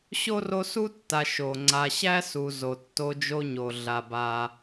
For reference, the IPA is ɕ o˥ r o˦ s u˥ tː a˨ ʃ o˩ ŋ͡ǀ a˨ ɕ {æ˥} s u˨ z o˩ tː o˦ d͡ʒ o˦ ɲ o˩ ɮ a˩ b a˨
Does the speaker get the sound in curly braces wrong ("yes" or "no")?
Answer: no